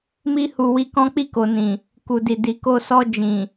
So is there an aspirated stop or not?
no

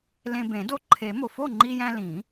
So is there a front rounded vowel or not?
no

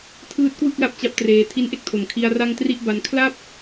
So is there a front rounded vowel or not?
no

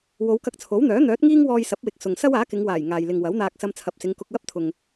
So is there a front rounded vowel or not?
yes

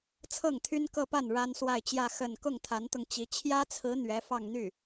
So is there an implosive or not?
no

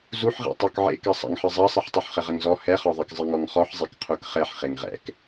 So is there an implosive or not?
no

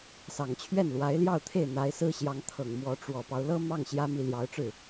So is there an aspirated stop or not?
yes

